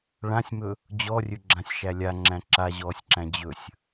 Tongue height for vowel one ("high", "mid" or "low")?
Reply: low